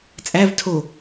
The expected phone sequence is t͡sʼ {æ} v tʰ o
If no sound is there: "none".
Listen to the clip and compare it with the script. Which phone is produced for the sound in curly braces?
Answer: æ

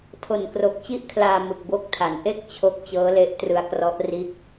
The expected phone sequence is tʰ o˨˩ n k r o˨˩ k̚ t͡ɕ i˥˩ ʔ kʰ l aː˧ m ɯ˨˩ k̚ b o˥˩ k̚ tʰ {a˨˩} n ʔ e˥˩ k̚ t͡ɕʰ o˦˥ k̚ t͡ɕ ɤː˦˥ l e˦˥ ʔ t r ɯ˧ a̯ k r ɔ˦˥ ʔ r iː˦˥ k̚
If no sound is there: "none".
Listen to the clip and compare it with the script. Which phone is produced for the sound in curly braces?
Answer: a˨˩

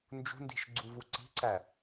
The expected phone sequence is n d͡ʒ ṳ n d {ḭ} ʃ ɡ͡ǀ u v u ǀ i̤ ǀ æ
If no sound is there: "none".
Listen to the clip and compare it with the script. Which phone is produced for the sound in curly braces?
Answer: i̤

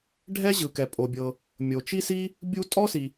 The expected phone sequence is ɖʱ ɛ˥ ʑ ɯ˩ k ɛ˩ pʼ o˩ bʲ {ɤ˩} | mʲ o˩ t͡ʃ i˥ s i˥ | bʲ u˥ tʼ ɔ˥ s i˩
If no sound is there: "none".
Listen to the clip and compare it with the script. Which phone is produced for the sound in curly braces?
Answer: ɤ˩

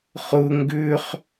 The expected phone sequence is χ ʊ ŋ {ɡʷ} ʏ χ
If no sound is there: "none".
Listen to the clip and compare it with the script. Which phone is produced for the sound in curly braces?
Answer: ɡ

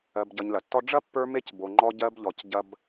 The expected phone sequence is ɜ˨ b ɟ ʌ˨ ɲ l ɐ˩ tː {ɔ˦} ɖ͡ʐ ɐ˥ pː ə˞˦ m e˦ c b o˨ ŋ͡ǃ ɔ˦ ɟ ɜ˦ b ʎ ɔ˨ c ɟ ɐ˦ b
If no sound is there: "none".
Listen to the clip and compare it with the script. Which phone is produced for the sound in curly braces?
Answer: ɔ˦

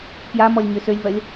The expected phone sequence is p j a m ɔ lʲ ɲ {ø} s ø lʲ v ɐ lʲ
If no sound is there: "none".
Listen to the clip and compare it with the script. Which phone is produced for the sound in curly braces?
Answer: ø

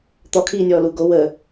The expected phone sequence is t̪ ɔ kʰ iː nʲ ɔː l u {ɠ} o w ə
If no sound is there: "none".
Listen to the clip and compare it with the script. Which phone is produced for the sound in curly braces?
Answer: ɡ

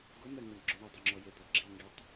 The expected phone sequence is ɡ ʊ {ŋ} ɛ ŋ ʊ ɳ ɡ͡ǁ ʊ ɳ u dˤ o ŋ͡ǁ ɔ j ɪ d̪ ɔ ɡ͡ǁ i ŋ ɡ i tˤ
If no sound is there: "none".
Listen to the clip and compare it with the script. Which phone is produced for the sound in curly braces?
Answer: m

